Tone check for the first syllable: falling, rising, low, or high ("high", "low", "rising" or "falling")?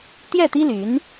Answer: falling